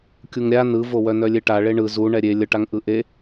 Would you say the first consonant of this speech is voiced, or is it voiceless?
voiceless